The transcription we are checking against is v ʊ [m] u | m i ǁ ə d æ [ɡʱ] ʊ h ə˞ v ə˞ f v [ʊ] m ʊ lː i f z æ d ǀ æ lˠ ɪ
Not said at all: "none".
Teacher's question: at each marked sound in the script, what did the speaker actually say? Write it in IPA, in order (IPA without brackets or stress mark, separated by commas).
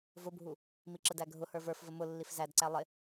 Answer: bʱ, ɡʱ, ə